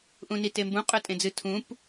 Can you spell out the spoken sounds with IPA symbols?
ʔ ũ n i t e m b ũ qʼ ɵ tʼ ẽ d͡z ɨ tʰ ũ p

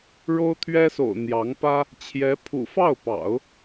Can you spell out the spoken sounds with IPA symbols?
ɻ o˥ ʊ̯ t̪ʰ ɥ ɛ˥ s o̰˨˩ ʊ̯ n̪ j ɑ˧˥ ŋ p ä˥ | t͡ɕʰ j ɛ˧˥ pʰ ṵ˨˩ f ɑ˥˩ ʊ̯ p ɑ̰˨˩˦ ʊ̯

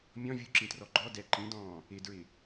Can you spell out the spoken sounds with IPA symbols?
mʲ ɔ̃ vʲ u ǁ ĩ t r ɔ ɡ͡ǃ ɔ d ɛ ǃ ĩ d ɔ̃ː | ɪ d ɹ ɪ

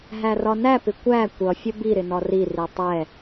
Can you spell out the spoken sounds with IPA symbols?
ɦ æ r ɒ n æ p ɪ kʷ æ kʷ ʌ fʲ ə b i ɾ ɪ n ɒ r i r i tˤ ɛ

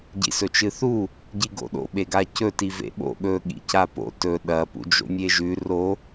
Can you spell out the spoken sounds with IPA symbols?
ɟ ḭ s ɵ t͡ʃ ɨ θ u | ɟ i ɡ o̰ ɗ o̰ ɓ e ɡ a c ɵ t i v ḛ ɓ o̰ ɠ ɵ ɠ ḭ c a p o̰ t ɵ ɗ ɐ p ṵ d͡ʒ o̰ mʲ e ʒ ʉ r o

